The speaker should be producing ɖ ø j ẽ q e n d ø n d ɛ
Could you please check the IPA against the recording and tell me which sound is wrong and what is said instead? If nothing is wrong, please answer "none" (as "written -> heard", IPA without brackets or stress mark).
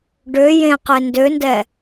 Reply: none